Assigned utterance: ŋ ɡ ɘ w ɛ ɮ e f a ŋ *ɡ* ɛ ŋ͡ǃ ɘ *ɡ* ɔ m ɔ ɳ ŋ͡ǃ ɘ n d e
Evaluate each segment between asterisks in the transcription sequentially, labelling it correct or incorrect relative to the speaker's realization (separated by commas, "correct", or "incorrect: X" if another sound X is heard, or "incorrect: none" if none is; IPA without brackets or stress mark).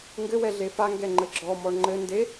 correct, incorrect: ɡ͡ǁ